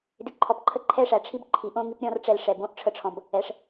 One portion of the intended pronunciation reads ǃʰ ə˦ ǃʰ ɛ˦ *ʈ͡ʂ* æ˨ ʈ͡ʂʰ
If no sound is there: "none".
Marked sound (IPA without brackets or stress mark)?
ʂ